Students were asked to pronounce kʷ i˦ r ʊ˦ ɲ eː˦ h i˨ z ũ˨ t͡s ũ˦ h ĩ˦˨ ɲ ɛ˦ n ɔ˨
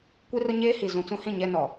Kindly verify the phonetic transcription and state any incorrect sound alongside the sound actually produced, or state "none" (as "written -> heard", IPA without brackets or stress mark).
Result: none